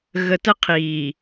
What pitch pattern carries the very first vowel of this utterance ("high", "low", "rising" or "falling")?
low